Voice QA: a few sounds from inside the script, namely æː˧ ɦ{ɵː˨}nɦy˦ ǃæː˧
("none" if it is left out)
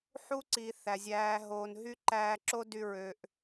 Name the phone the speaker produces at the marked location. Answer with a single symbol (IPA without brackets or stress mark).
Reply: oː˨